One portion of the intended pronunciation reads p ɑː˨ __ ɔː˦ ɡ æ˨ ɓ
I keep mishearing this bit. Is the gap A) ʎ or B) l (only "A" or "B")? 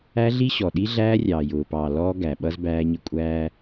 B